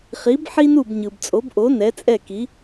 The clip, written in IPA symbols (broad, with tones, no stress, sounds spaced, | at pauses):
χ i˩˥ b ħ i˥ n u˥˩ b ɲ ɯ˩ b t͡sʼ o˩˥ b ʔ o˩˥ n ɛ˩˥ t͡sʼ ɛ˥˩ k i˩˥